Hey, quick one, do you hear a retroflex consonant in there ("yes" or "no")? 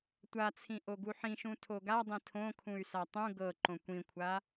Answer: no